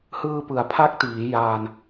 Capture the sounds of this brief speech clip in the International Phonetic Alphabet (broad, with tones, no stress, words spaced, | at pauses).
hɯː˧pɯ˩˦a̯pʰa˦˥k̚tiː˩˦ jaː˧n